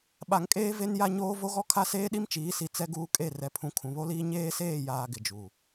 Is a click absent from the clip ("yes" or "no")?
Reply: yes